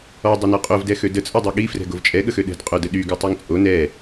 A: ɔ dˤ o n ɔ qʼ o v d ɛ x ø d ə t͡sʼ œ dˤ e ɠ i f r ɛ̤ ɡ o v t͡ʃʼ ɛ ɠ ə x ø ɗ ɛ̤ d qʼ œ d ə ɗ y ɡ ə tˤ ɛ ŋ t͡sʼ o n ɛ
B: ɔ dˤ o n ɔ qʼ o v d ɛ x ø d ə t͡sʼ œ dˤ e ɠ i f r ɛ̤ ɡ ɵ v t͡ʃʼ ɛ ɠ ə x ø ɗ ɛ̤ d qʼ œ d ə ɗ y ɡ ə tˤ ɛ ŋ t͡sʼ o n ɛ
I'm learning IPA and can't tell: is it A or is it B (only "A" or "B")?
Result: A